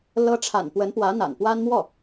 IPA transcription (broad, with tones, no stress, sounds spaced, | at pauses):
l ɤ˥ ʈ͡ʂʰ a̰˨˩ n p w ə˧˥ n p w ä˧˥ n̪ a̰˨˩ n p w a˥ n m w ɔ˥˩